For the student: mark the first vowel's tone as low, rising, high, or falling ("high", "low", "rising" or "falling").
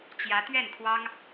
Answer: rising